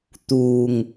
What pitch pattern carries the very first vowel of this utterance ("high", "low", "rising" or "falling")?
low